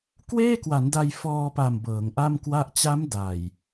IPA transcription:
kweː˥˩kwa˩˦nda˧j fɔː˧pa˨˩m bɤː˩˦ŋʔa˥˩mkwa˥˩ʔ t͡ɕa˦˥m da˨˩j

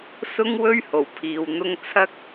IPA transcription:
sʊ˥ŋwɵ˥ɥho˨˩wpʰiː˨w n̪ʊ˧ŋt͡sʰɐ˥k̚

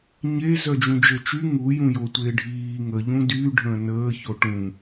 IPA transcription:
ɲe zœd͡ʒũd͡ʒet͡ʃy ŋujũ jotʷeɖʱiː ŋə ʎũdy ɖʱə̃ːnəːço ʈũ

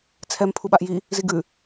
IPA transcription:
t͡sʰɛm pʰuɓaʔji | ziɡʉ

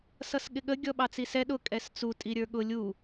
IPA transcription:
sʌsɠɪɠə ɡʲɔɓɑt͡sisɛ ɗʊ kʼɛst͡su tʼiɾʲə˞ɠʊ lʲu

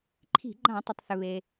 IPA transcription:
ǃʰi̤˧˩˧ɡ͡ǃã˧˩˧ tˤɪ˩tˤ θʏ˩βe˩

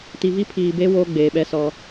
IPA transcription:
ti˨vi˦pʰiː˨beː˦ woː˦ɡ͡beː˨ɓɛ˦sɔ˦

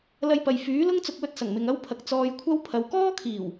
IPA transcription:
lɐ˧jpɐ˨j fyː˨˥lʊ˥ŋ t͡sʊ˧k̚wɵ˧t̚sɐ˨˩ŋmɪ˨ŋ ɐ˧wpʰɐ˨k̚ t͡sɔː˧jkʷʰɐ˥w pʰɐ˨wkɔː˥kʰiː˨˩w

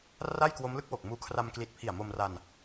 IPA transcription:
ra˥˩jkwo˦˥m lɯ˦˥k̚wo˨˩k̚ muː˧kʰra˧m kli˨˩t̚pʰi˨˩a̯ mo˧mra˧n

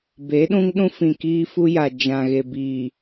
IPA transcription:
be˨˦ɗũ˦ŋɗũ˦ fĩ˨kiː˦fu˦ ja˨d͡ʒã˨ɣe˨bi˨

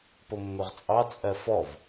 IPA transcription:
pomːɵʁt͡sʼɑ t͡sʼɜfɔv

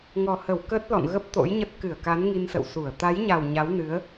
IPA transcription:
ŋɔ˨˩hə˧˩w kə˦˥t̚lɔ̰˧˨nɣə˦˥p̚ t̪o̰˧˥jɲə˦˥t̚ kɨ˧˩ə̯ka˨˦n ŋi˧nsə̰˧˨wsu˧˩ə̯ t̪a˨˦jɲa˨˩w ɲa˨˦wnɨ˨˦ə̯

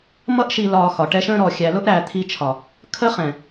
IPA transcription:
mʌ˦ʔʃi˧ lɒː˧xɒ˨ʈɛ˦ʃə̃ː˦ ɾɔ˨xʲæ˨lʊ˦ʔɾæ˨ t̪ʰi˦t͡ʃʰɒ˨ | kʰə˦χɛ̃˨

